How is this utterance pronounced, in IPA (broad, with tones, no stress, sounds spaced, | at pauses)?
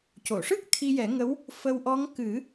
c o˨˩˨ ʂ ɨ˦˥ k̚ t̪ʰ i˧ j ɛ˨˩˦ ŋ ə˧˥ w | f ə˧ w ʔ ɔ˧˥ ŋ k ɨ˨˩˦